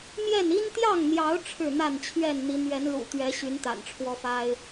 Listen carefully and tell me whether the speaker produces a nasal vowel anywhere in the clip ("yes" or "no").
no